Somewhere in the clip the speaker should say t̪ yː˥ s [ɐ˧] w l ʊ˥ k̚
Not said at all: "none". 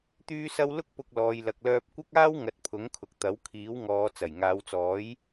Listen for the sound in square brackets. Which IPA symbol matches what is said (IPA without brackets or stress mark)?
ɐ˥